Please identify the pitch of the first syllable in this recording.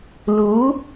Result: rising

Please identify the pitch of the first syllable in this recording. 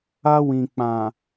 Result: high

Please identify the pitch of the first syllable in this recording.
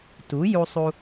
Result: rising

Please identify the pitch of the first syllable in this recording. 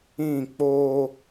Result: falling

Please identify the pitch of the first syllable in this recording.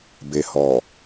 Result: low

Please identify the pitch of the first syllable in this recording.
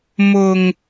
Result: low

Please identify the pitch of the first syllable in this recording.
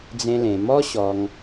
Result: high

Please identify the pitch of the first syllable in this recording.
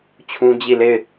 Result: high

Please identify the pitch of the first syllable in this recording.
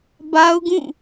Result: high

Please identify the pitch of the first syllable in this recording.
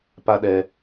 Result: high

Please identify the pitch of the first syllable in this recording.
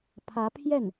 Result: rising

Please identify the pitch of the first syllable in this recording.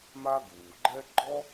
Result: high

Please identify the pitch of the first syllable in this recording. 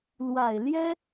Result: low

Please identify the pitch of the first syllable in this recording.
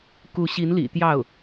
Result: rising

